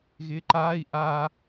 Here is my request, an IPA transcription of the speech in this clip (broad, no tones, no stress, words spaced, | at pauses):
ɣɪːǃaːi̯ ʔa